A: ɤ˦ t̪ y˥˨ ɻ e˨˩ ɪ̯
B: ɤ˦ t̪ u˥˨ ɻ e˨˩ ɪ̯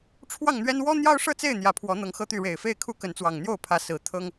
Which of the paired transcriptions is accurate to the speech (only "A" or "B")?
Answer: A